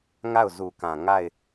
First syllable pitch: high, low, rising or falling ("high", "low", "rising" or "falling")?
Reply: falling